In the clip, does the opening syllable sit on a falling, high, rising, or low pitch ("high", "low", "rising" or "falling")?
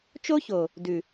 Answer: high